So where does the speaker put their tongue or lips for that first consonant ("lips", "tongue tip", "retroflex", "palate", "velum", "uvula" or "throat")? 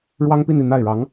retroflex